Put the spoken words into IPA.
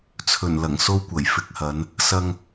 t͡sʰ ɵ˨˩ n l ɐ˨˩ ŋ s o˥ w kʷ ɐ˨˩ j f ɪ˧ k̚ h ɐ˨˧ n | s ɐ˧ ŋ

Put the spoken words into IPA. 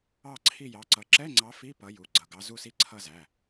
ɑ˦˨ ǀʰ i˦˨ j ɑ˩˧˩ ǀ ʌ˨˦ ǁ ɛ˧˥˧ ŋ͡ǀ ɑ˨˦ f i˧˥˧ p ʌ˨˦ j u˩˧˩ ɡ͡ǀ ʌ˩˧˩ ɡ ɑ˨˦ z u˦˨ s i˧˥˧ ǀʰ ʌ˦˨ z æ˩˧˩

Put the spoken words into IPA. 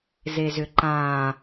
z e z ʏ ǃ ã

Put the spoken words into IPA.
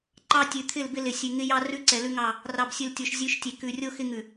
ǃ ɑ˦ tʲ ʉ˨ t̪ʰ ɪ˦˨ l b ɪ˦ l ɪ˨ sʲ ʉ˨ ŋ ɪ˦ j ɑ˦ r ʉ˦ ǀ ɛ˨ l ʉ˦ ŋ ɑ˦˨ | r ɑ˨ b sʲ ʉ˨ l tʲ o˨ ʃ zʲ ʉ˨˦ ʃ tʲ e˨ k ʉ˨ rʲ o˦ x ɪ˦ ŋ ʉ˨

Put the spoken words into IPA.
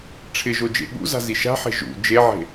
ʈ͡ʂʰ ɪ ʒ o d͡ʒ ḛ ɠ ṵ z a̤ z i ʃ a̤ ħ e̤ ʒ ṵ d͡ʒ e ʕ e̤

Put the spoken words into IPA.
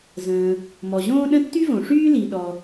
z ə̃ː˩ | m ɔ˩ ʑ õː˥ ɗ ə̃˥ tː y˥ v õ˩ ʂ yː˥ l i˩ ɗ ɔ˩

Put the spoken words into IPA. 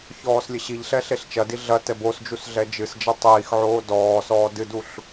ç ɔː s lʲ ɘ ɕ i ʎ ɬ ɛ ɬ e ɬ t͡ʃ ɐ d i ɮ ɐ t ɛ b o s d͡ʒ u s ɮ ɛ d͡ʒ ɨ s d͡ʒ ɘ tˤ iː x ʕ oː d ɔː s ɔː d ɨ d u ɬ

